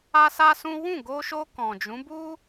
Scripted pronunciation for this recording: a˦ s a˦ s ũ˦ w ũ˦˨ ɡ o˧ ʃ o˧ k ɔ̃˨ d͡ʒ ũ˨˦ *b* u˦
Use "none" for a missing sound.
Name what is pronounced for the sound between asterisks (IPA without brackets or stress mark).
b